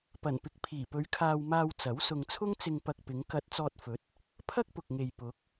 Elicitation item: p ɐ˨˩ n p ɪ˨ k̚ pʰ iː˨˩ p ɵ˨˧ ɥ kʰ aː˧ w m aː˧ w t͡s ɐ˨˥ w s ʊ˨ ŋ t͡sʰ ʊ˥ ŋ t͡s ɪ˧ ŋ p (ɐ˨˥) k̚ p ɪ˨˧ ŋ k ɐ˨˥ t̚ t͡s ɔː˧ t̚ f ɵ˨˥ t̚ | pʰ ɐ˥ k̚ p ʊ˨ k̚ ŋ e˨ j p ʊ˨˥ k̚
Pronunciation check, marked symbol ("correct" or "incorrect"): incorrect